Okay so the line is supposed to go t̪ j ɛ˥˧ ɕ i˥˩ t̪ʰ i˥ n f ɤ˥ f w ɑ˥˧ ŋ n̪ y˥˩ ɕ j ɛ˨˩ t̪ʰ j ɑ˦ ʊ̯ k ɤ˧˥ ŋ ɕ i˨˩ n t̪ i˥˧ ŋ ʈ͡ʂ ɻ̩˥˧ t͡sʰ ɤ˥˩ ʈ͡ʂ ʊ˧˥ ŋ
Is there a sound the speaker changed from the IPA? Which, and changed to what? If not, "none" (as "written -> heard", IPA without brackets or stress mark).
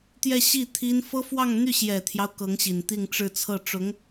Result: none